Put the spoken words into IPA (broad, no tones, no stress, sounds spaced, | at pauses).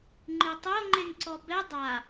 ŋ͡ǃ i tˤ o ŋ͡ǃ e ŋ ǀ ɔ b ɛ dˤ a